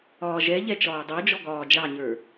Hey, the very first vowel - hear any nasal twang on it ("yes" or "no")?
no